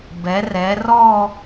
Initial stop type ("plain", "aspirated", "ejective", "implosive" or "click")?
plain